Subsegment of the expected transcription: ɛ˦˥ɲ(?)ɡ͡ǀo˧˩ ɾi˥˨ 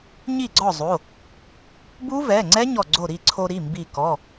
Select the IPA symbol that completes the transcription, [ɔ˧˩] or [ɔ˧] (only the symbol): ɔ˧˩